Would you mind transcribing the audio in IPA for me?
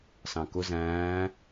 sɑ̃kʊ zæ̃ː

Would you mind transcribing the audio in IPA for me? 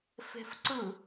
fe̤fǀɯ

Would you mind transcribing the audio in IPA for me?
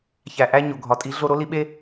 çæ˨ʔæ˥ ɲo˨ ɡʱɒ˨tʼi˧˥ ɮo˥ ɾo˧˥li˧˥ɓe˥

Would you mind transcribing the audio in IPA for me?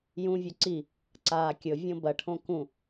jũvʲɵ ǀi | ǀaːkʲɵvʲõ bɐʈʰõ kũ

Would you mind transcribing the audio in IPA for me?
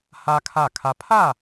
ha˦kʰa˦˨kʰa˦ pʰa˦˨

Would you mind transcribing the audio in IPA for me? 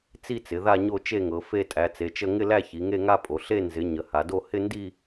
t͡si˥˧t͡sɪ˩˧ ða˥˧ɲo˥˧t͡ʃe˥˧ŋɤ˩˧ fe˥˧tʼæ˩˧t͡se˩˧t͡ʃə˥˧ ŋɪ˥˧læ˥˧ çi˩˧ŋe˥˧ŋa˥˧pʼo˩˧ ɬe˥˧ nzɪ˩˧ ɲə˩˧ ha˩˧do˥˧ hɪ˥˧ndi˥˧

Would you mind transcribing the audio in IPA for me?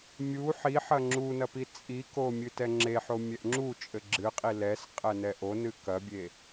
mʲu ħiħɐ ŋ͡ǁunɐ pit͡sʼiko mʲɨtɛŋ͡ǁeħo mʲɛʔŋ͡ǁut͡ʃʼɘ ɡ͡ǁɨqʼi lɛs qʼɛnɛʔonɨ kɐbʲe

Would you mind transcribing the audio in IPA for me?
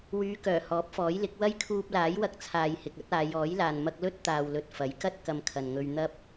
wyː˨˧ kœː˨˩hɔː˨˥p̚fɔː˨˥jlɪ˨˥k̚ wɐ˥jkʰuː˧p̚laː˨˥j wɐ˧k̚t͡sʰaː˨jhɪ˨k̚ ɐ˥t̚aː˨˧j ɔː˨˥jlaː˨n mɐ˧k̚lɵ˥t̚ t̪aː˨wlɵ˨t̚ fɐ˨˥jkɐ˥t̚ kɐ˧mkʰɐ˨nŋɵ˧ɥ n̪ɐ˥p̚

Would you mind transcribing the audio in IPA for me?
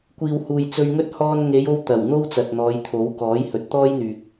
kʷiː˨whuː˨j t͡sɵ˧ɥŋɵ˥t̚ hɔː˧nŋe˨˧j o˥wt̪ɐ˨˩w n̪o˥w t͡sɐ˨t̚n̪ɔː˨˧jt̪ʰo˨˥w kɔː˨˥jhɵ˨t̚ t̪ɔː˥jn̪yː˨k̚

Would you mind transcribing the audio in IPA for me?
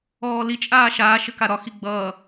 ɔːli t͡ʃʼaːʃaː ʃɘkaɾɒxi ɡ͡bʌː

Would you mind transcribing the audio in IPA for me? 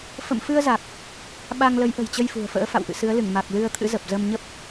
fə̰˧˨mfɨ˧ə̯za˨˩k̚ | ɓa˧ŋlə˨˦jʔə̤˨˩j t͡ɕə˧jfṳ˨˩ə̯fə̰ː˧˥ fa̰˧˨wʔɨ̰˧˨sɨ˨˦ə̯lɨ˧˩ŋ ma˨˩k̚ lɨ˧ə̯t̪ʰɨ̰˧˥ zə˨˩p̚zə˧mɲə˦˥p̚

